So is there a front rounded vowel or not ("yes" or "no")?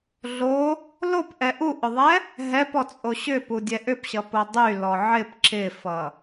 yes